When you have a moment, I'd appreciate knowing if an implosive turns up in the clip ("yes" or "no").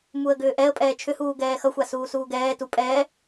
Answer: no